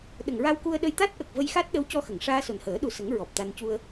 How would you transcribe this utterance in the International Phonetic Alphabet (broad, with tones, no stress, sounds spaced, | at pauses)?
ɗ ə˨˩ ŋ ɹ a˧ w k u˧ ə̯ ɗ ə˧ j t̪ a˦˥ t̚ ʔ ə˨˩ k̚ v ə˧ j x a˦˥ t̚ ɗ ə˧˥ w c ɔ˧ x ə˨˩˨ ŋ ʂ aː˧ s o˨˩ n h əː˨˩˦ ɗ u˨˩ s ə˨˩˦ ŋ ɹ ɔ˨˩ p̚ t̪ a˧ n c u˧ ə̯